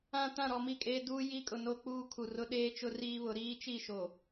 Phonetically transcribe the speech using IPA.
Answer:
ã˨ t ã˦˨ ɾ ɔ˨ m i˦˨ kʼ eː˦ d uː˦ j i˦ kʼ ʊ˨ n o˦ k͡p uː˦ kʰ u˨ r ʊ˦ ɗ eː˦ t͡ʃ ʊ˦ r iː˦ β ʊ˨˦ ɾ iː˦ t͡ʃ i˦˨ ʃ o˨

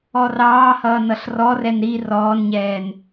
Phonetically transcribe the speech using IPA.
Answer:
ɔ r ɑː h ʌː n ʌ ɬ r ɔ r ɛ n ɾ i r ɔː n ɲ ɛː n

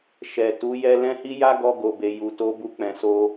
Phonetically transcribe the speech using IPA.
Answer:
ʃ ɛ˨ t u˨˦ j ɛ˧ l ɛ̃˦ h i˦ j a˦ ɡ ɔ˧ ɡ o˨ b e˨ j u˨ t o˧ b u˧ k͡p ɛ̃˨ s o˧

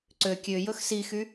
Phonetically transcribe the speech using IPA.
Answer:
ǀ ø kʲ ø j ɵ x s i x y

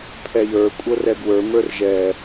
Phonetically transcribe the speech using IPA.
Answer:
pʰ ɛ j ə˞ kʷʼ ɤ r ɛ ɡ w ə˞ m ə˞ r ʒ ɛ

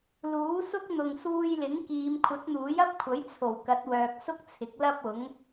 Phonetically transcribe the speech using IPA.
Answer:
l uː˨˥ s ʊ˥ k̚ n̪ ʊ˨ ŋ s uː˧ j l ɪ˨˥ ŋ k iː˨˧ m kʷʰ ɐ˨˥ t̚ n̪ uː˨˥ j ɐ˥ p̚ kʷʰ ɐ˨˥ j t͡sʰ o˨˩ w k ɐ˨˥ t̚ w œː˨ k̚ s ʊ˥ k̚ t͡sʰ ɪ˨˥ k̚ l ɐ˥ p̚ ʊ˨˥ ŋ

